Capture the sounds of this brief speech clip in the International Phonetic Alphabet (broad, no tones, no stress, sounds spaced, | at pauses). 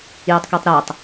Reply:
j o tˤ k e tˤ ɾ ɜ tˤ